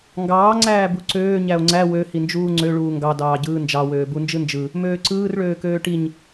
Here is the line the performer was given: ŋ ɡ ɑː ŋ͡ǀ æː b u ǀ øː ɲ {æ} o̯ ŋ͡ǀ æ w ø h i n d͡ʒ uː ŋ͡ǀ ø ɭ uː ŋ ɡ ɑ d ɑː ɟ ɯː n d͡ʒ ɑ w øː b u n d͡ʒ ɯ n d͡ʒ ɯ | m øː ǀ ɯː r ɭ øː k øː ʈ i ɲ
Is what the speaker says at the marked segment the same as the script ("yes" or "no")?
yes